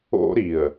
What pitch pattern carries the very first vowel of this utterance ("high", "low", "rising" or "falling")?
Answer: high